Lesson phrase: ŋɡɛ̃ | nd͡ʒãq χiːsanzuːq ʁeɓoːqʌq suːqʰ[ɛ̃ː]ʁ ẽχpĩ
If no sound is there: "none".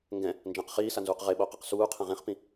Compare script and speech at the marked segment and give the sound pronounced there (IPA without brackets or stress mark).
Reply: ɛ̃